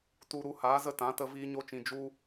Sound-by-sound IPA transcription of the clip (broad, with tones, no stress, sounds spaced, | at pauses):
t u˧ ɾ u˧ h aː˨˦ z ə˦ t ã˨˦ t ə˧ v iː˦ ɲ o˦ t͡ʃ ĩ˧ d͡ʒ u˧